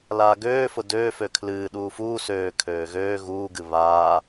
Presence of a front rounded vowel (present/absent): present